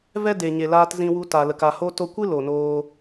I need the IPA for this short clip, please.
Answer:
v ɛ˦ d e˨ ɲ e˨ l aː˧ t z ĩ˧ w u˧ t a˨ l ə˨ k a˨ h o˧ t o˧ kʷ ɨ˦ l o˨ n oː˧

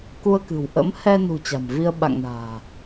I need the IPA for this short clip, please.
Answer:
k u˧ ə̯ k ɨ̤˨˩ w ʔ ə̰˧˥ m h ɛ˧ n ṳ˨˩ t͡ɕ a̤˨˩ m v i˧ ə̯ ɓ a̰˧˨ ŋ n a̤ː˨˩

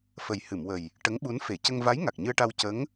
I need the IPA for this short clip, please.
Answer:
f ə˨˩ j h ɨ˨˩˨ m w ə˨˩ j | ʈ ə˧˥ ŋ ɓ u˧˥ n f e˨˩˨ c ə˧ ŋ v a˧˥ j ŋ a˨˩ k̚ ɲ ɨ˧ ə̯ ʈ a˧ w c ə˧˥ ŋ

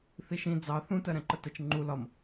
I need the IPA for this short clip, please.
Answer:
θ i ʃ ĩ d͡z ɑ θ ũ t ɜ ɾ ɛ̃ ǃ ə t ə t͡ʃ ŋ͡ǃ u l ɒ m

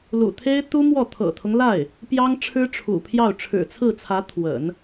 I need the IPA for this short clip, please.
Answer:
l ṵ˨˩ t̪ʰ e˥ ɪ̯ t̪ u˥ m w ɔ˥˩ t̪ʰ ɤ̰˨˩ t̪ʰ ʊ˦ ŋ l a˥˩ ɪ̯ | p j ɑ˥ ŋ ʈ͡ʂʰ ɻ̩˥ ʈ͡ʂʰ ṵ˨˩ pʰ j ɑ˥˩ ʊ̯ ʈ͡ʂʰ ɻ̩˨˩ t͡sʰ ɹ̩˥˩ t͡sʰ ä˧˥ t̪ʰ w ə̰˨˩˦ n

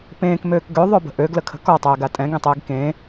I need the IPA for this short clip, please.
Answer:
p ẽː k m øː k ɡ ø ðˤ ø b ə̤ ʔ ø ɡ l ə kʰ ə̤ k ɔ tˤ ɛː ɡ a tʼ ɛ̃ ɡ ẽ tˤ eː ɡ k ẽː

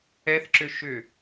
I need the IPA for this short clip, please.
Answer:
ɛ θ ǁ ʏ ʃ ʏ

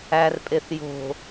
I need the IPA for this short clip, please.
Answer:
æ r pʼ e θ j o̤

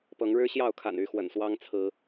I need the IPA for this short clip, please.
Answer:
p ɤ˨˦ ŋ ɻ ɻ̩˦ ɕ j ɑ˥˨ ʊ̯ kʰ a̰˨˩ n y˥˨ x w ə̰˨˩ n s w ɑ˦ ŋ t͡sʰ ɹ̩˨˦

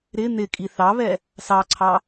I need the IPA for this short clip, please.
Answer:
ɾ ɪ n̪ ɪ kʼ i θ ɑ β ɛ | s ɑ ǀʰ ɑ

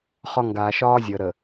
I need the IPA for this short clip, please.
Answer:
χ ɒ˦ ŋ ɡ aː˨ ʃ ɒː˦ zʲ əː˨ ɾ ə˨

